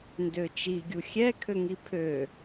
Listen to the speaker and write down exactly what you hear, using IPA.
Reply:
ndøt͡ʃi ɡʲuxʲɛkʰø ŋipʰø

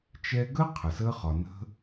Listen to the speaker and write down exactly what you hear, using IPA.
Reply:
t͡ʃɛ˧ ɡəː˥qʰə˩səː˧χɒ˩ nə̤˧

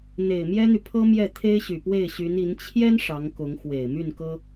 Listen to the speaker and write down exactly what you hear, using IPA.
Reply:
n̪e˨˩ɪ̯mjɛ˥n̪y˨pʰɤ˥ mjɛ˥˩t̪ʰe˥ɪ̯ ɕy˨˩pwe˥˩ɪ̯ɕy˧˥ni˧˥n t͡ɕʰjɛ˥n ʂɑ˧˥ŋkʊ˧˥ŋ xwe˨˩ɪ̯my˥˩nkɤ˥

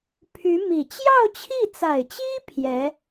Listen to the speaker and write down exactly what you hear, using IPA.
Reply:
pʰy˧˥mi˨˩ t͡ɕjɑ˥˧ʊ̯t͡ɕʰi˥˩t͡sa˨˩ɪ̯t͡ɕi˥ pʰjɛ˧˥

